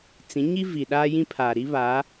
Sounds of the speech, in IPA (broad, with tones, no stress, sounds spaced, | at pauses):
t͡s ĩ˨˦ ɲ i˦ v i˨ ɗ aː˦ j ĩ˦ pʰ aː˨ ɾ i˦ β a˨˦